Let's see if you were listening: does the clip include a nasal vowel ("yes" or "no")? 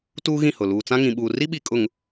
yes